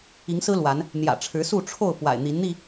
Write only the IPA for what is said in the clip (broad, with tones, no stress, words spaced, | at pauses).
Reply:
i˨˦ŋsɹ̩˦ lwa˨˦n | n̪jä̰˨˩ʈ͡ʂʰɻ̩˨˦su˥˨ ʈ͡ʂʰo˥˨ʊ̯ pwa̰˨˩ɪ̯n̪i˨˦nn̪i˥˨